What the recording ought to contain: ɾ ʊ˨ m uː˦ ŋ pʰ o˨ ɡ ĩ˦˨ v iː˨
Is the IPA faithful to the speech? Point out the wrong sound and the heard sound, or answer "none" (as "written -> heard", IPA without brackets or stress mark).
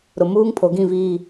none